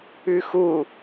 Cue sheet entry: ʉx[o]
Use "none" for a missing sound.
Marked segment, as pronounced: u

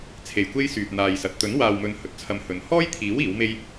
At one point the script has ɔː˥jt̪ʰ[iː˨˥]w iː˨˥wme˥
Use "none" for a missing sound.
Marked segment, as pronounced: iː˨˥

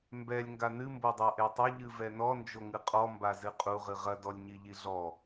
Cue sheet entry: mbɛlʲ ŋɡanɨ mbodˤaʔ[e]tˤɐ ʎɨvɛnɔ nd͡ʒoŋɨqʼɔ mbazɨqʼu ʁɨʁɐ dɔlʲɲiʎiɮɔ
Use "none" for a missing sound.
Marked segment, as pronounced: e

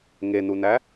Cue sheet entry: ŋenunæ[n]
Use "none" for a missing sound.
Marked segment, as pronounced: none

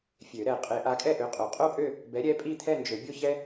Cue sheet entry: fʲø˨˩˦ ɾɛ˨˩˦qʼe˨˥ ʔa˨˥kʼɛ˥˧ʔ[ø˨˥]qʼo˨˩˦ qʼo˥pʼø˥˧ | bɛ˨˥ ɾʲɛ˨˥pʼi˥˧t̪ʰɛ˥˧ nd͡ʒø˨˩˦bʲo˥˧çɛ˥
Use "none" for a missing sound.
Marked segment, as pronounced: ø˨˥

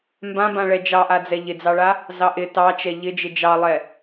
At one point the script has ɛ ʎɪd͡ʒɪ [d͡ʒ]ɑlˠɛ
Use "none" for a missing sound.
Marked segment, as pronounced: d͡ʒ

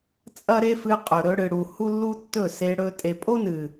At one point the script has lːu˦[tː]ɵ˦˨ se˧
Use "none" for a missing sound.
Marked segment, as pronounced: tː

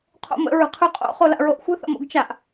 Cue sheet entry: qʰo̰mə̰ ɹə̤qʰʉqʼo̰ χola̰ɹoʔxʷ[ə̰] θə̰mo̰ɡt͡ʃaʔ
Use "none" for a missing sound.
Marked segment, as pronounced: ə̤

